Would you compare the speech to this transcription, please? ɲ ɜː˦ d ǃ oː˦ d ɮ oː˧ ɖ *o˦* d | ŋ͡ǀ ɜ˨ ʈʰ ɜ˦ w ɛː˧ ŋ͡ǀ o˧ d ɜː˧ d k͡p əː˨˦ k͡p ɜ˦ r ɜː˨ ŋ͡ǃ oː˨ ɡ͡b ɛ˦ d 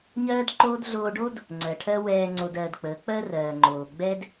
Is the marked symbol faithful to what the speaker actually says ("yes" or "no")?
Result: yes